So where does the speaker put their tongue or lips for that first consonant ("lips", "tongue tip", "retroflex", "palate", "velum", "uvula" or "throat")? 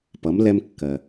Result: lips